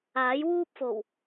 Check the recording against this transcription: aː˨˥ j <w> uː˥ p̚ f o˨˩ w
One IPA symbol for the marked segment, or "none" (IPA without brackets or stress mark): w